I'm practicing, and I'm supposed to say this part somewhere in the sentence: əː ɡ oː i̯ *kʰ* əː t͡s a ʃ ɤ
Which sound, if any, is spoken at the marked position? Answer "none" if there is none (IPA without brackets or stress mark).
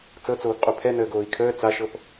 kʰ